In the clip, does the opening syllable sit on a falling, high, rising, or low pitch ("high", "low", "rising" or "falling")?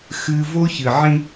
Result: high